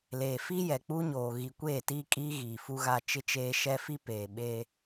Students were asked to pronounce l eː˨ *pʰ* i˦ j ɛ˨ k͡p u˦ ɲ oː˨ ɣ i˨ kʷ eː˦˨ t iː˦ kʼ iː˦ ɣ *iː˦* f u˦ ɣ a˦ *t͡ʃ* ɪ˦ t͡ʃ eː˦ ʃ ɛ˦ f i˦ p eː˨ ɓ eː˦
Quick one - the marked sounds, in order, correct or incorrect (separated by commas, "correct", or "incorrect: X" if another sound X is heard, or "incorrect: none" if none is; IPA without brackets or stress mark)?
incorrect: f, incorrect: iː˨, correct